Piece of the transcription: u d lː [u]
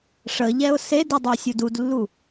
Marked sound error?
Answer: no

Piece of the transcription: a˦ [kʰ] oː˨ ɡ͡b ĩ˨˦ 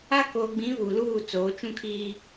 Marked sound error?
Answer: yes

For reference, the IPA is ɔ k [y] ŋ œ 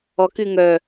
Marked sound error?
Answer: no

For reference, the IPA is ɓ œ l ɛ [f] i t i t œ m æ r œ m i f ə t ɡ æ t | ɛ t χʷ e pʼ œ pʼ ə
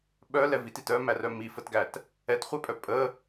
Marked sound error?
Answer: yes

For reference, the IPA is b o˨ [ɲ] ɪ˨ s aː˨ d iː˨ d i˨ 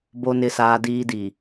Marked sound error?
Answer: yes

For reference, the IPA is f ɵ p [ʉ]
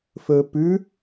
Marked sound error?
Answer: no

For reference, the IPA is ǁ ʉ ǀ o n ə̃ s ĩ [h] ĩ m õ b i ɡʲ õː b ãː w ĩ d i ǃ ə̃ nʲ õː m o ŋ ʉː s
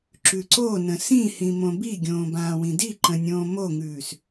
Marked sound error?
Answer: no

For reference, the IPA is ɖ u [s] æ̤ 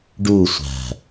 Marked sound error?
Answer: yes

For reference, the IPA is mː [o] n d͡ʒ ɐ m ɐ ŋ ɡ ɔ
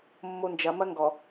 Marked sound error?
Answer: no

